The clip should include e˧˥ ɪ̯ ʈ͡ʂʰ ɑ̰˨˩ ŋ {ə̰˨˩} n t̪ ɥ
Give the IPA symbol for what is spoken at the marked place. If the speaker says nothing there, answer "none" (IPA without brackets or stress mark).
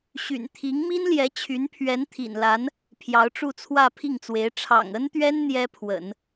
ə˥